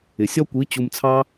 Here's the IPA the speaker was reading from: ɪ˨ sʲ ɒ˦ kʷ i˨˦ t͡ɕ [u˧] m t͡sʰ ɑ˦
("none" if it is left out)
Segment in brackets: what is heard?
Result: u˧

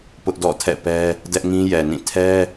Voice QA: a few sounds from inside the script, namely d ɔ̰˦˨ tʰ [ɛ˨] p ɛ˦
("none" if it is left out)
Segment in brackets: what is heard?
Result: ɛ̰˦˨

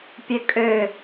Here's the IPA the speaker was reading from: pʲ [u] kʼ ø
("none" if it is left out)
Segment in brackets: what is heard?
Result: ø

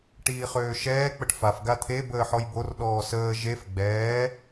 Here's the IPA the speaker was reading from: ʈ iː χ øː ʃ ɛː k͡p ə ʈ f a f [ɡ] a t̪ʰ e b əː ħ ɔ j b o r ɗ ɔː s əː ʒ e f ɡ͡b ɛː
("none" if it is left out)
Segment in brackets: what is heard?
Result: ɡ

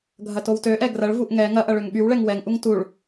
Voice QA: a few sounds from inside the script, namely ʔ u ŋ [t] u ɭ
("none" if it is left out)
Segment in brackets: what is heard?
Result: t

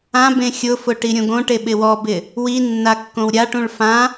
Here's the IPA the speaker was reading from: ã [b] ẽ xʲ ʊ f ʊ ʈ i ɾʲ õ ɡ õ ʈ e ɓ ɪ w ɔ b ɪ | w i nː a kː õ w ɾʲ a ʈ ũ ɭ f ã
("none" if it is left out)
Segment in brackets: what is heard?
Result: b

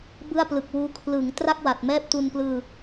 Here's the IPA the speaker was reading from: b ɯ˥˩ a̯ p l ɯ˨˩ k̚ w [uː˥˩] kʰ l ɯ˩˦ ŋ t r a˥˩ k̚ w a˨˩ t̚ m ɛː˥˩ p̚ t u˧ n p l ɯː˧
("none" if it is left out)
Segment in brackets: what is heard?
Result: uː˦˥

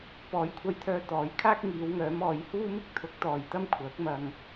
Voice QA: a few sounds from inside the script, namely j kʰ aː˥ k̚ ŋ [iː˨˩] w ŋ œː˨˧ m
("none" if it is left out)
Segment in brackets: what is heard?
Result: iː˨˧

